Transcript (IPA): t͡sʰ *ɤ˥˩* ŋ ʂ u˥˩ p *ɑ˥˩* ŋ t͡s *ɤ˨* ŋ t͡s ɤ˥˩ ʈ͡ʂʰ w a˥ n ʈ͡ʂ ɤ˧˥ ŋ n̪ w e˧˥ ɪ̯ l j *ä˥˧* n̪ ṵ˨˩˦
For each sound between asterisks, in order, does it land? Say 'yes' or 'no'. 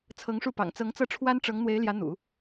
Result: no, no, no, no

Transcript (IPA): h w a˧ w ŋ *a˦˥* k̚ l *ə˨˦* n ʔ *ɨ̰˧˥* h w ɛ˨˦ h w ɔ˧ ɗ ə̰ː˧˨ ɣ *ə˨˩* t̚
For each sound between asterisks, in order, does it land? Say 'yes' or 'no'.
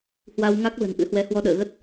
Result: yes, no, yes, no

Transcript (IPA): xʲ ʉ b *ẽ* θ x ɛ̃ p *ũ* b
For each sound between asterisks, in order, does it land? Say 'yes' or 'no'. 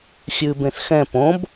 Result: yes, no

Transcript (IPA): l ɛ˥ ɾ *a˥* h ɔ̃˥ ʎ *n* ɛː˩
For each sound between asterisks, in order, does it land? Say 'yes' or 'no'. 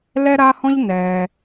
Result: yes, yes

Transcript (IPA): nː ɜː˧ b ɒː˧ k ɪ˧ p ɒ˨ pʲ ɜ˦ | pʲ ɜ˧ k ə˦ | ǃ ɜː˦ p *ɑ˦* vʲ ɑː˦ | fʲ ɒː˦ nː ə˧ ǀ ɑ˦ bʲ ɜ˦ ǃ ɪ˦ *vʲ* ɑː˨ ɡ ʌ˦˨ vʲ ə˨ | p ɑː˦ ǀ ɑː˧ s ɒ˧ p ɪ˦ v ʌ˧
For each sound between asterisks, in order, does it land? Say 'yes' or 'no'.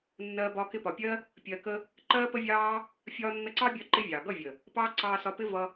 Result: no, yes

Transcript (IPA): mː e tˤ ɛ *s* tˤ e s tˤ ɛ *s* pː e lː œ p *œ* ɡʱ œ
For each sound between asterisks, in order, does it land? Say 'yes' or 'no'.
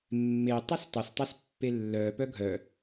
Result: yes, yes, yes

